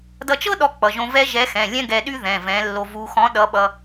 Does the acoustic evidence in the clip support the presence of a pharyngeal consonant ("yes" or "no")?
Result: no